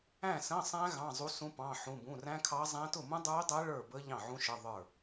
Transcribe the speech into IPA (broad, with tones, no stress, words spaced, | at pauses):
æ̃˥˨sə̃˧˥˧sˤæ̃˦˥ ɣɑ̃˧˥˧zˤu˦˥sũ˦˥ pɑ̃˧˥˧ħũ˧˥˧bũ˧˥˧ ræ̃˦˥kʰɑ˦˥zˤæ̃˦˥ tʊ˥˨mũ˦˥dˤə˞˦˥y̯dˤæ˦˥ ɭə˞˥˨bə˦˥ ʎɑ̃˥˨ʕũ˦˥ʃə˧˥˧ ðˤə˞˥˨